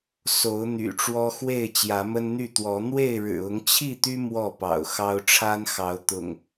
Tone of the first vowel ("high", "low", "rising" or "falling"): rising